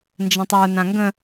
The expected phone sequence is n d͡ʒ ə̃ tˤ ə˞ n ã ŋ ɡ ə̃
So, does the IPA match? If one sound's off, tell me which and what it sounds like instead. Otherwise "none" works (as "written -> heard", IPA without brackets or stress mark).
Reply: none